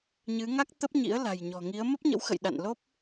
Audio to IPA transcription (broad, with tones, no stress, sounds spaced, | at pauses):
ɲ ɨ˨˦ ŋ a˦˥ k̚ t̪ ə˦˥ p̚ ɲ ḭ˧˥ ə̯ l a̤˨˩ j ɲ ɔ̤˨˩ ŋ i˨˦ ə̯ m ə˦˥ p̚ ɲ ə̰˧˥ w x ə̰˧˨ j ɗ a̰˧˨ n l o˦˥ p̚